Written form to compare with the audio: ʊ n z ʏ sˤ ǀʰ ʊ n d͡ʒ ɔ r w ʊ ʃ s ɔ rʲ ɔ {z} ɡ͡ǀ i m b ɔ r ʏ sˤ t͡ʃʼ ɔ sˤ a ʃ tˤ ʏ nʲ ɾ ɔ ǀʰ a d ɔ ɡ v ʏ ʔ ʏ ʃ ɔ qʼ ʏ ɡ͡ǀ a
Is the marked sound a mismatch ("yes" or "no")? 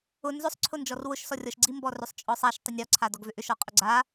yes